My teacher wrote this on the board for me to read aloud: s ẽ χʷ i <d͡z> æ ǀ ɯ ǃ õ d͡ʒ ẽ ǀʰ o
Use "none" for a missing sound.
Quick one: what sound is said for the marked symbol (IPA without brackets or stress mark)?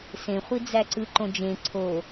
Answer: d͡z